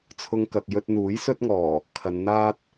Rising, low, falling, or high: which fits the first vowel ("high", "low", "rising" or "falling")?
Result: high